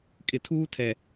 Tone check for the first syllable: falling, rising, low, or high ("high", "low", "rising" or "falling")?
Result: low